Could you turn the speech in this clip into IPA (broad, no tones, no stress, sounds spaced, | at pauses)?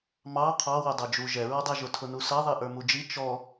m ɑ qʰ ɑ w ʊ dˤ ə˞ d͡ʒ u ʒ ɛ ɹ ɔ dˤ ɛ ʒ ʊ tʰ ʊ n u s ʌ ðˤ i ʔ ə˞ m u d͡ʒ i t͡ʃ ɔ